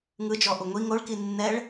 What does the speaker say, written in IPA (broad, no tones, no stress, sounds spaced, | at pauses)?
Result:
ŋ ɯ d͡ʒ ɔ ʔ u ŋʷ i ŋ o ɭ k i nː ɛ ɭ